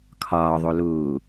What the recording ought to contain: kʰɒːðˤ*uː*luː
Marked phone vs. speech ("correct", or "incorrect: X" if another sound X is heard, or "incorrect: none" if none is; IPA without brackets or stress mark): incorrect: u